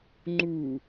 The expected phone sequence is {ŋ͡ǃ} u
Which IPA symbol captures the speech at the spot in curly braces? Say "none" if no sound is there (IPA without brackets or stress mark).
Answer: ŋ͡ǃ